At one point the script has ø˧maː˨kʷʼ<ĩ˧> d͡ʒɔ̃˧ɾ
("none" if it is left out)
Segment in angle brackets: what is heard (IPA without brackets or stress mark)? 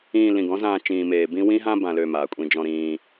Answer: ĩ˧